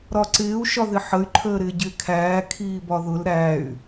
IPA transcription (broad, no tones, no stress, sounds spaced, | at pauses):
ɾ ɒ ǀ ɪː u̯ ʃ ɒ ð ɪ ħ ə y̯ ǃʰ əː ɾ ɪː ɟ ɪː kʰ æː kʰ iː b ɒ ð ʊ l ɾ æ y̯